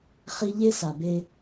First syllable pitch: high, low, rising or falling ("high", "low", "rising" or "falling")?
high